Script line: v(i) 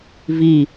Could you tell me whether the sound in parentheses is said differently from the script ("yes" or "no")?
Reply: no